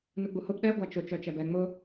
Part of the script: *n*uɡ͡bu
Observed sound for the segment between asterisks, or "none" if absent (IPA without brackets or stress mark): n